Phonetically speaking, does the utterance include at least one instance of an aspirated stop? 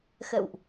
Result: no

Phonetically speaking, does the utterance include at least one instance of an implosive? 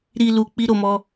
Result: no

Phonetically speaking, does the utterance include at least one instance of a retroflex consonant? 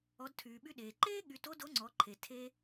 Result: no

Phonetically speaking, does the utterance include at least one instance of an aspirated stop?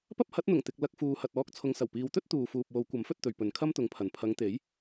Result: yes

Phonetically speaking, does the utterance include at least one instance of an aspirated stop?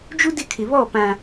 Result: yes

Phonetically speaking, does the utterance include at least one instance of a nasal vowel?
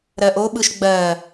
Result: no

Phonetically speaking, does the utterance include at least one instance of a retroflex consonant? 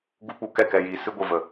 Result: no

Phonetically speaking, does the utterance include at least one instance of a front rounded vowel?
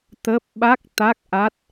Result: no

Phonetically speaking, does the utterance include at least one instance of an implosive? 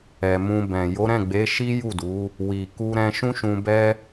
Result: no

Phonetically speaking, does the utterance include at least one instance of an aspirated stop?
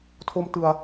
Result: yes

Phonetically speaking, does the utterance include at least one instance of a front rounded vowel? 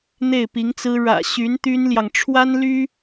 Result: yes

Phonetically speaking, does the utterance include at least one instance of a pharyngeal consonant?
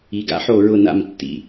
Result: yes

